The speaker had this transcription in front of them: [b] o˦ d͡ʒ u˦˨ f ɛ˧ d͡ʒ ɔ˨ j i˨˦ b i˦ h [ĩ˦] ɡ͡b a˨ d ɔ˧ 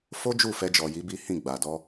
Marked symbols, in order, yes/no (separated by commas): no, no